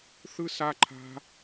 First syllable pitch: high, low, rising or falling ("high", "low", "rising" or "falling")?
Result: high